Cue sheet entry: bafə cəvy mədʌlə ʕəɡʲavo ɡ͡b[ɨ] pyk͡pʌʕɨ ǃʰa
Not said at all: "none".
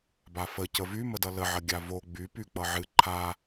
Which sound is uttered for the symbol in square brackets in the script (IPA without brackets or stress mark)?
y